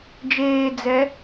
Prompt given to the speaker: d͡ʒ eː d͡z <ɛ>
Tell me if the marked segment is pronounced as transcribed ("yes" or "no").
yes